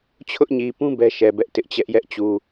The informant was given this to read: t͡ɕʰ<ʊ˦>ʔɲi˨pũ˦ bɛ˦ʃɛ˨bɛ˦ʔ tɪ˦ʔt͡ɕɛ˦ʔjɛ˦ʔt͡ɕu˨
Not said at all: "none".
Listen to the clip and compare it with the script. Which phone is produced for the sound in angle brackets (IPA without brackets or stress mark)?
ʊ˦